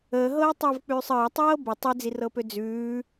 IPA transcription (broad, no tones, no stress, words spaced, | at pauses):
əːɦɤːtˤəːvk͡pʉːsˤ əːtˤɤː bitˤ ʉd͡zirɤpø d͡zʉː